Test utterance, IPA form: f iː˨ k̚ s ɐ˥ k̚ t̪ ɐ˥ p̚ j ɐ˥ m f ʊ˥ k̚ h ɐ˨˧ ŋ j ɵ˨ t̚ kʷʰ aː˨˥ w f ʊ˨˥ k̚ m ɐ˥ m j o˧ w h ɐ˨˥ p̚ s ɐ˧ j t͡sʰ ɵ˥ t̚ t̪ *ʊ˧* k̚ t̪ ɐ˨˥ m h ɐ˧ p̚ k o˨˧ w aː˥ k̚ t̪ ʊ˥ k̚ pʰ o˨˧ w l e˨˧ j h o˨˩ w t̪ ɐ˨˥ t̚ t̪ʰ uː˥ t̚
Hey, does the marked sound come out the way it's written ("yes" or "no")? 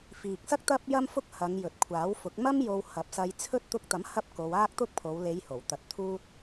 yes